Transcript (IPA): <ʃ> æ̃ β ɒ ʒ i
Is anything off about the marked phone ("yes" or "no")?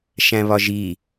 no